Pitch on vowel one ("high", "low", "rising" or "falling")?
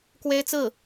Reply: high